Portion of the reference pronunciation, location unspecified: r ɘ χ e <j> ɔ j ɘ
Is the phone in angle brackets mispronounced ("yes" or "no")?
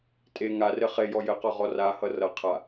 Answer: no